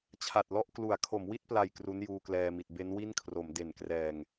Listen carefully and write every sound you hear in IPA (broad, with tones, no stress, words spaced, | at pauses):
t͡ɕʰa˨˩t̚lɔ˥˩ʔ klu˩˦a̯kʰo˩˦mwi˥˩t̚pla˨˩j kru˦˥njuː˧klɛː˧mi˨˩t̚ be˦˥nwi˥˩nkʰro˩˦m de˨˩nkrɛː˨˩ŋ